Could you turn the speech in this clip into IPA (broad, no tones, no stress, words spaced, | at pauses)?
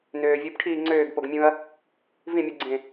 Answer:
nøːvʲupʈʰiː ŋ͡ǀøːɡpoɡmʲũɐ̯ | vĩmʲuɡ͡ǀẽ